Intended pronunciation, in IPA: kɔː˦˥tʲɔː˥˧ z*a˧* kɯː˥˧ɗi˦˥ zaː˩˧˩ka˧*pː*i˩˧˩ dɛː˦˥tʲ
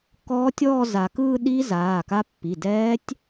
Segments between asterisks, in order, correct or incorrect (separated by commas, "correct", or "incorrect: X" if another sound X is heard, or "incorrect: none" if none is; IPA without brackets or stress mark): correct, correct